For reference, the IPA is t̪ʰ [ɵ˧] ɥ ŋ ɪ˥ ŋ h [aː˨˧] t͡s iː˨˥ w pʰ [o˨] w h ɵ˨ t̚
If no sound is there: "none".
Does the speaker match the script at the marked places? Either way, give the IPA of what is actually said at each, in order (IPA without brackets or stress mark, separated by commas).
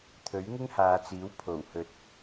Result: ɵ˨˥, aː˨˧, o˨˩